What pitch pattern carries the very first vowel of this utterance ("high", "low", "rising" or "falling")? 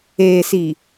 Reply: low